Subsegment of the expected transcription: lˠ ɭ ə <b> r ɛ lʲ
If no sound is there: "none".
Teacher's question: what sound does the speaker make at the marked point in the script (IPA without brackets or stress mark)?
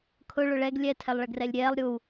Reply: ɡ